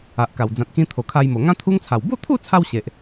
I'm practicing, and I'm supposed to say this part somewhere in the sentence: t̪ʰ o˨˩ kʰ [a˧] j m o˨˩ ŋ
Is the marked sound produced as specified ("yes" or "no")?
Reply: yes